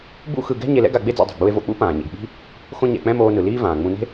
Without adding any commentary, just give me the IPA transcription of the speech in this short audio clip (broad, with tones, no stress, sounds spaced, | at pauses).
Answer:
b ṵ˥ x ɯ˧ ɡ ɛ̤˥ ɲ e˧ l ɛ̰˥ ɡ a˧ ɡ͡b e˥ d͡z ɛ̰˧ dˤ ɛ̤˩ ɡ͡b u˧ e̯ v o̰˧ k͡p ṵ˥ p ãː˩ ɲ ḭ˩ ɡ ɓ i̤˥ | x õ˥ ɲ ɛ̰˧ k͡p ɛ̃˥ m oː˧ n ɯ˩ l iː˥ v ãː˩ ŋ͡m ũ˧ n e̤˥